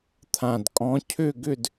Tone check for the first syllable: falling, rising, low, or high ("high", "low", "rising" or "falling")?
low